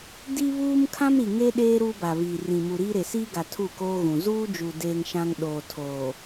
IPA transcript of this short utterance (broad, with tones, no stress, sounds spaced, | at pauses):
d i˦ β uː˦ m kʰ ã˦ m ɾ i˨ ŋ e˦ ɗ eː˦ ɾ uː˦ b a˨ β iː˨ r ĩ˨ m u˨ ɾ iː˦ ɾ e˨ s iː˦ ɡ a˨ tʰ u˦˨ k oː˦ ɣ ũ˨ z uː˦ d͡ʒ u˨ d eː˦ ŋ ʃ ã˦ ŋ ɗ oː˨ tʰ oː˨